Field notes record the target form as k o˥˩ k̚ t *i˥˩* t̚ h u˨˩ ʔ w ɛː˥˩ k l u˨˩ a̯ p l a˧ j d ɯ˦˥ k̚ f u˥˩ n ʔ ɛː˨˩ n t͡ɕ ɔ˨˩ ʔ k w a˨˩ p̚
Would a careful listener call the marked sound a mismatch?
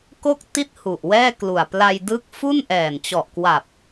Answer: no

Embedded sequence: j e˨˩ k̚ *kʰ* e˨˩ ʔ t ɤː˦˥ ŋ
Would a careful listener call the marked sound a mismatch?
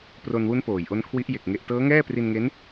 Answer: yes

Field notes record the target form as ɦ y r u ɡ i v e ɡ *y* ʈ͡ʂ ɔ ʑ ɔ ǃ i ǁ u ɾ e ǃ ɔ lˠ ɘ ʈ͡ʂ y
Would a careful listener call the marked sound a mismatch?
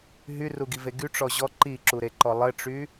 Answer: no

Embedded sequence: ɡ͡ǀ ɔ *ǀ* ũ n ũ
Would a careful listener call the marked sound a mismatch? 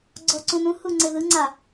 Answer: no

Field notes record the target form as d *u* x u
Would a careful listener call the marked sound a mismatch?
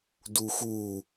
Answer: no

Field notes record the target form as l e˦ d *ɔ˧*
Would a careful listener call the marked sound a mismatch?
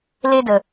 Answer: yes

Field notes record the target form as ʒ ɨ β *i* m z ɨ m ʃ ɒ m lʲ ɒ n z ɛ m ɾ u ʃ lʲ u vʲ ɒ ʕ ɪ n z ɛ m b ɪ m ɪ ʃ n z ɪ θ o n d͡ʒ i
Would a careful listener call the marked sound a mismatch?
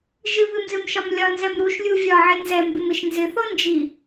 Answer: yes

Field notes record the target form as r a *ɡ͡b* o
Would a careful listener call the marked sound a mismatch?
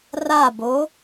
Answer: yes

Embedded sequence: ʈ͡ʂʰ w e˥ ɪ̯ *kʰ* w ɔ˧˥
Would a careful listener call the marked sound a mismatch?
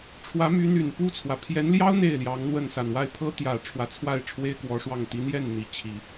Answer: yes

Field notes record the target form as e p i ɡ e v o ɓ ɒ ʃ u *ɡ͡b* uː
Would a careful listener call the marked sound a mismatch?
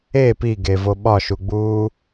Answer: no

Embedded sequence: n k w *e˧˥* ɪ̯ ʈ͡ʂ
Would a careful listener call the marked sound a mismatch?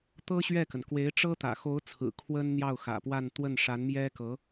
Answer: no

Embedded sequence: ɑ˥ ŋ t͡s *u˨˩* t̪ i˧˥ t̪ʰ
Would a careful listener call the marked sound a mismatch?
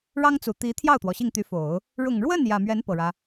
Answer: no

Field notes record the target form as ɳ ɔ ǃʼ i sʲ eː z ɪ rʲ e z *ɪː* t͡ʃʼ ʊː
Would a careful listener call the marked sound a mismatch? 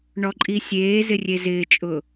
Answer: no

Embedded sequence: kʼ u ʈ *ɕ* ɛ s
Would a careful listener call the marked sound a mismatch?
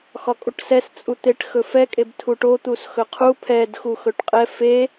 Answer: yes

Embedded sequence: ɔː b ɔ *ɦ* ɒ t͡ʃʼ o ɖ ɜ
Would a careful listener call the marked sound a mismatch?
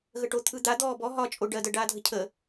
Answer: no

